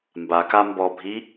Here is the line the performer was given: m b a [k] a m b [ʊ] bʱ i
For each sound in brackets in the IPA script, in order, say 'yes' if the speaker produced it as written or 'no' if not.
yes, no

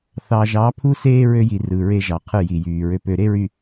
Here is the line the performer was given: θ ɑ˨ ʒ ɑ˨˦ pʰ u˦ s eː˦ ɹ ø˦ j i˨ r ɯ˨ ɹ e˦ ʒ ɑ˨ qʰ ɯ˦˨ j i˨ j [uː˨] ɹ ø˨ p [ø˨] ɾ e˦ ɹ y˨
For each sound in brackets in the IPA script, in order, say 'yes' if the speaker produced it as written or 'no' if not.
no, yes

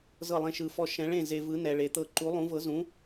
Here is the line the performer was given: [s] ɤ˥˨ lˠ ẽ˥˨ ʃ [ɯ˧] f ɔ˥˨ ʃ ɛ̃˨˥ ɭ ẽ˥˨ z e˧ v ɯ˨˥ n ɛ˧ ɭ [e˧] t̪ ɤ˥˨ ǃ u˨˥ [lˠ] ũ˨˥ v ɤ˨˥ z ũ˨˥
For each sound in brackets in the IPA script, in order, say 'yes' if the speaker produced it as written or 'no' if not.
no, yes, yes, yes

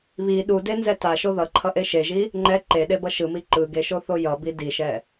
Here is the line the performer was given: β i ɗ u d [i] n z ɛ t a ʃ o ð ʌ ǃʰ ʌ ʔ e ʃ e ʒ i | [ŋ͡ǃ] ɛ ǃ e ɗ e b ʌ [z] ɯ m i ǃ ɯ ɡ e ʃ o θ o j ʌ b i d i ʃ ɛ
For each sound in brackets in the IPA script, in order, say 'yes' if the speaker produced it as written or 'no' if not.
no, yes, no

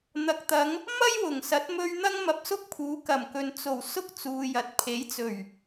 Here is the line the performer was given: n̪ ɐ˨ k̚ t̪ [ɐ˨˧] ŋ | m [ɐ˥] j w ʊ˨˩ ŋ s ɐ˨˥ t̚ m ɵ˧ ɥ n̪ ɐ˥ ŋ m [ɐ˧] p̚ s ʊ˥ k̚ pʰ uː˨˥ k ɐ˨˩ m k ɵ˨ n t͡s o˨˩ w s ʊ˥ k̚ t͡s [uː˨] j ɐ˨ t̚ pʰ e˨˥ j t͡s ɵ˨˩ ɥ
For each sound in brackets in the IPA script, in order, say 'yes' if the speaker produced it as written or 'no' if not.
yes, yes, yes, yes

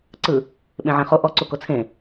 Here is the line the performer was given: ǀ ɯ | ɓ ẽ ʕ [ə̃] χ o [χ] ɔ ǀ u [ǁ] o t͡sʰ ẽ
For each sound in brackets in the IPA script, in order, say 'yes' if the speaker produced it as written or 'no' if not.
no, no, no

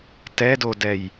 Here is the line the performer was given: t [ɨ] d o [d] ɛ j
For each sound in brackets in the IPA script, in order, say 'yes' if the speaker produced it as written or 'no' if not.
no, yes

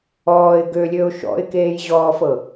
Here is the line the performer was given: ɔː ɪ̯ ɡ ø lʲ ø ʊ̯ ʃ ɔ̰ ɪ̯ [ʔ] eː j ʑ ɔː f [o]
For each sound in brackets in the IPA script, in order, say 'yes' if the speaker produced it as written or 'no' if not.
no, no

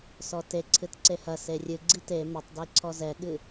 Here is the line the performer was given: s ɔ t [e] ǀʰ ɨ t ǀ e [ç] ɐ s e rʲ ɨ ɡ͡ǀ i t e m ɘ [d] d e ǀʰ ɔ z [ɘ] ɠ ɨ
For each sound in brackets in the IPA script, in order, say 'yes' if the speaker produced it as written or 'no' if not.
yes, no, no, no

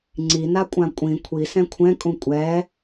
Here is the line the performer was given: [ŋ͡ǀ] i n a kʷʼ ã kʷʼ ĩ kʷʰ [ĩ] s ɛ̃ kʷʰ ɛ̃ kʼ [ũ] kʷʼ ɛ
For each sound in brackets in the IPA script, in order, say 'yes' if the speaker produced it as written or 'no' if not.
yes, no, yes

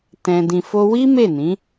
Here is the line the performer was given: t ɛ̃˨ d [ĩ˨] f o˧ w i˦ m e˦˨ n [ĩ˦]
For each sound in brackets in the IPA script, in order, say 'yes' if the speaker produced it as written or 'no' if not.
yes, no

